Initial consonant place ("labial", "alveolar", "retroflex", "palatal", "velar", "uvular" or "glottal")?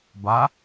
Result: labial